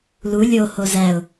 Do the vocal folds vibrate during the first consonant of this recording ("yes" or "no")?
yes